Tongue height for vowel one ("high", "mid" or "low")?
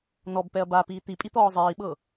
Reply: mid